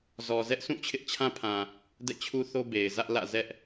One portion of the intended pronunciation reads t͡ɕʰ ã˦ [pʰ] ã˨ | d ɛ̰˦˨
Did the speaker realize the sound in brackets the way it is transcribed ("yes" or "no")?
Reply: yes